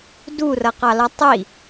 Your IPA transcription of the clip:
durʌqɑlʌ tˤi

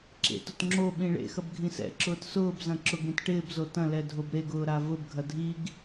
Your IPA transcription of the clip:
ǁḛtʊt ŋ͡ǁo ɓĩɭḛxɐb ɡʱĩsɛ̰ǁʊːt sʊːbzɐ̃ ǁʊɡɾĩt ʈɪːbzo tɐ̃lɛ dʱobɾeɡʊː ɾavʊbɡʱɐ dʱiɡ

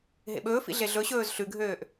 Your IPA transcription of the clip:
ɦḛɓɵːfḭ ɮeɮɵɕɵːz ɬʉɡʱøːʔ

